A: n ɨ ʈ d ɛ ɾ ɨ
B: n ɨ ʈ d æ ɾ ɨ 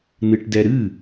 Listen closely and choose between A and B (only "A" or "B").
A